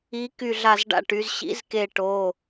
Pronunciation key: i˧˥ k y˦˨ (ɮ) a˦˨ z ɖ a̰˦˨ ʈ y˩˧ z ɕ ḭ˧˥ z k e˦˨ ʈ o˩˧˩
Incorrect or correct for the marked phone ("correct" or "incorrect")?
correct